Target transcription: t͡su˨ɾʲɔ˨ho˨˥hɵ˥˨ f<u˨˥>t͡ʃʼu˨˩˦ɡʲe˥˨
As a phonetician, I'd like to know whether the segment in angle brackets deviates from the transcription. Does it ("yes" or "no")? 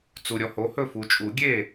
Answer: yes